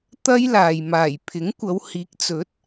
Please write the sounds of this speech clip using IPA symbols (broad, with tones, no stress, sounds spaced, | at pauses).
t̪ ɐ˥ j l aː˨ j m aː˨˩ j pʰ ɪ˨˥ ŋ kʷ ɐ˨˧ w h iː˨˥ k̚ t͡s ɵ˨˥ t̚